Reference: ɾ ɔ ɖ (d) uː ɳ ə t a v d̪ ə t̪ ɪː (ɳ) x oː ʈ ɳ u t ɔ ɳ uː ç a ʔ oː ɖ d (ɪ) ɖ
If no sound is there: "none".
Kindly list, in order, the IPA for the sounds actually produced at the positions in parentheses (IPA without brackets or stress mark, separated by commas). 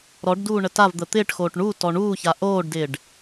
d, ʈ, ɪː